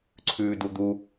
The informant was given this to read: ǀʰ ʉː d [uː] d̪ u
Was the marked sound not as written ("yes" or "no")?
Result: yes